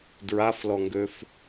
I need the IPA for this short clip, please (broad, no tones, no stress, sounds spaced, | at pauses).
d ɹ a f l ɔ ŋ ɡ ø f